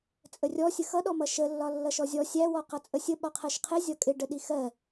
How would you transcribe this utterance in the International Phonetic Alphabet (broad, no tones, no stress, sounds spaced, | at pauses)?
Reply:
t͡sʼ ə rʲ ɔ sʲ ə x ʌ ɗ ɔ m ʌ ʃ ə lː ɒ lː ʌ ʃ ɔ zʲ ɔ sʲ æ w ɔ q ʌ t͡sʼ ə sʲ ə ɓ ɒ qʰ ɜ ʃ qʰ ɪ zʲ ɒ kʼ ɪ ɖ ə ɗ i x ɜ